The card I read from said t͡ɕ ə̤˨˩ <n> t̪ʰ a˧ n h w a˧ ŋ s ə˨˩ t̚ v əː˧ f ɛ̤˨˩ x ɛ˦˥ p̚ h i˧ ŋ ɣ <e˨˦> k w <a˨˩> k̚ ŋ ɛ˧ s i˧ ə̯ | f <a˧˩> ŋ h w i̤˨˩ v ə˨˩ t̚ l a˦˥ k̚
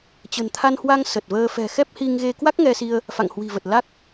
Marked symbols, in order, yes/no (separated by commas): yes, no, no, no